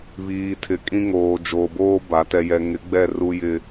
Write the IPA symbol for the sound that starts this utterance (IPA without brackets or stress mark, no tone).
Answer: β